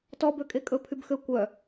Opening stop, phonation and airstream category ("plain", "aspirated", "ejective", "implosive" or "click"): plain